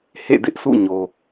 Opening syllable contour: falling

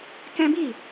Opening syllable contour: high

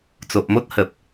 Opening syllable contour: low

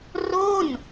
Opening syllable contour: falling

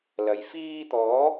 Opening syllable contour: low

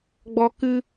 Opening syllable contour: high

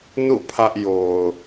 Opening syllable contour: falling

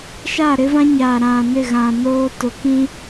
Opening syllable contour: falling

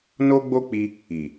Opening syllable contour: high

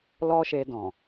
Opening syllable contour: high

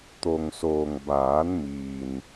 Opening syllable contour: low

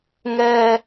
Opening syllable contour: low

